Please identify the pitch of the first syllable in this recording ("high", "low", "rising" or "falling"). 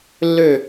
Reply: falling